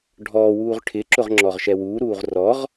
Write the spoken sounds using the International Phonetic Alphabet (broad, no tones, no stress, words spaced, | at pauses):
ɖʱɔːwuːʁ ʈʰɪǁʊʁŋ͡ǁɔʁʃɛ wuːɾuːʁ rɔʁ